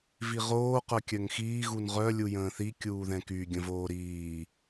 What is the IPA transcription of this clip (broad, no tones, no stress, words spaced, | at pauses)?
viʁoː qœkʲœŋxiː ɣunʁœ lʲujə̃ːθi kʲuːðɛ̃ky ɡʲə̃voːɾiː